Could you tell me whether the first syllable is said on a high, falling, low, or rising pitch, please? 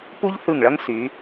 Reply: high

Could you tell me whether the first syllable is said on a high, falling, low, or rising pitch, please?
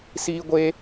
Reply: high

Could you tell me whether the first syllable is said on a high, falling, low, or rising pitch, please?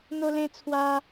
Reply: high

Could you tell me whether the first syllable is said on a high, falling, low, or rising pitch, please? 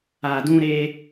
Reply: low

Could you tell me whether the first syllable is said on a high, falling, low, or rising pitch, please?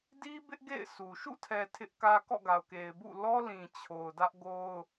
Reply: high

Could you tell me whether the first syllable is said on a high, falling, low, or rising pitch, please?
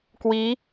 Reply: rising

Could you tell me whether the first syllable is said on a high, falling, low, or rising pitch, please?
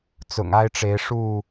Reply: low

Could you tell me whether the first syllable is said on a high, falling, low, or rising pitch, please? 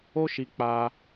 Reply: high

